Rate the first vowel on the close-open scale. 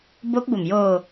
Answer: mid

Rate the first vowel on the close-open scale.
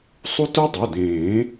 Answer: close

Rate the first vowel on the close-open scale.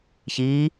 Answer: close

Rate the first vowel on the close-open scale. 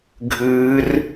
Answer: close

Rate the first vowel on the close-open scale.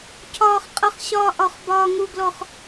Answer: open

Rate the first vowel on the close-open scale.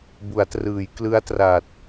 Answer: close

